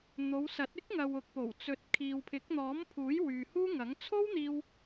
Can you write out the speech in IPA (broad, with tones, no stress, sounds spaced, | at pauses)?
n̪ o˨˧ w s ɐ˨˥ t̚ ɪ˥ k̚ ŋ ɐ˨ w ʊ˨ k̚ p o˨˩ w t͡s ɵ˨ t̚ kʰ iː˨ w pʰ ɪ˨˥ k̚ n̪ ɔː˨˥ m pʰ uː˨˥ j w yː˨ h uː˥ ŋ ɐ˨˥ ŋ t͡sʰ o˥ w n̪ iː˧ w